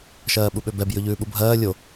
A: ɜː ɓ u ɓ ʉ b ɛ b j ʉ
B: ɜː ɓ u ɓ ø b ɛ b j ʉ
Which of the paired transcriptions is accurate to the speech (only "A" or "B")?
B